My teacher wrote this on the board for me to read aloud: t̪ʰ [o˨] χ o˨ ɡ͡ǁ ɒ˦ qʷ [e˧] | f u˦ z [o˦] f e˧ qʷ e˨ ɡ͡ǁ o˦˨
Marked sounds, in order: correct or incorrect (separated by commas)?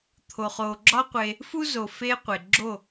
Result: correct, correct, incorrect